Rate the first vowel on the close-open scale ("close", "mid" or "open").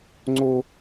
mid